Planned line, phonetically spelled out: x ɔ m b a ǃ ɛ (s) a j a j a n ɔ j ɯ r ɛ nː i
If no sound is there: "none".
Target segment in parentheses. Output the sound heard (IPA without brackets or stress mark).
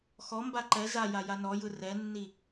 z